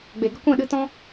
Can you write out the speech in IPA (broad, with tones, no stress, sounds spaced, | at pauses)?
ɡ͡b e˨ ɡ ə˦ kʷ ɛ̃˦˨ ɗ ɨ˧ t ɔ̃˦